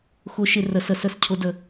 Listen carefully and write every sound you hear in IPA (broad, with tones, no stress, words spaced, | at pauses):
xʊ˧˥ʃɪ˧ rə˧˥sə˧ sə˧˥s cʰʊ˧˥də˧